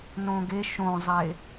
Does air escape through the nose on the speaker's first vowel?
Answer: yes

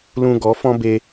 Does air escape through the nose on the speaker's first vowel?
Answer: yes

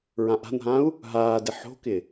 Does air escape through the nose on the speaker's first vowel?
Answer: yes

